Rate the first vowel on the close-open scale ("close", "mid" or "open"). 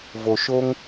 mid